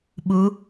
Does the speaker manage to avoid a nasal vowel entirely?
yes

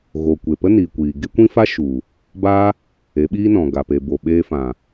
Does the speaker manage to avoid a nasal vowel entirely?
no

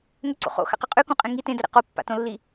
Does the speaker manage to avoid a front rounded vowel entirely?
yes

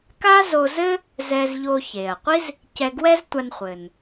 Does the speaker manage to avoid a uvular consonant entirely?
no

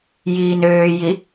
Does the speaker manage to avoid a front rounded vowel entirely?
no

